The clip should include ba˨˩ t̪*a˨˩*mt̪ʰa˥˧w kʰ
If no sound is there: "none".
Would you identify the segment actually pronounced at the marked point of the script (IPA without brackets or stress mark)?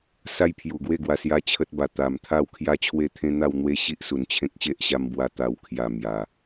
a˨˩